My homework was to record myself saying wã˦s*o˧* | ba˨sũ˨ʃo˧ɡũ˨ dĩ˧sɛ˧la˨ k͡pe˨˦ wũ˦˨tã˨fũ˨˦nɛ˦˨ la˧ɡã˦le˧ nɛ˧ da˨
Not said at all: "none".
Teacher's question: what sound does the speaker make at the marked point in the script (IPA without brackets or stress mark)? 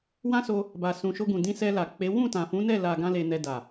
o˧